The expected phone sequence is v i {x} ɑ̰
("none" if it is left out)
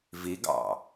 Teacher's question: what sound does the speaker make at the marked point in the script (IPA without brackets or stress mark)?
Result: ɡ